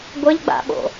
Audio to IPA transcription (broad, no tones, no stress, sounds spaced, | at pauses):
ɡʷ ə ʎ ɡ͡b a̰ ɓ o̰